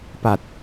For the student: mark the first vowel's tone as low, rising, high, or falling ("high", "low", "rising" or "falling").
low